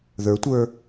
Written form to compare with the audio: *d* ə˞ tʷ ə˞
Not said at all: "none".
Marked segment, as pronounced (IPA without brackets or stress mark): ð